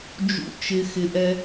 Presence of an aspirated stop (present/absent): absent